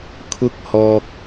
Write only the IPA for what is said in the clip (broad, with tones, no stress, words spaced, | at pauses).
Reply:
kʰʊ˧k̚hɔː˨k̚